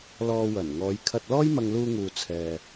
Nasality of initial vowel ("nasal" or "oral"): oral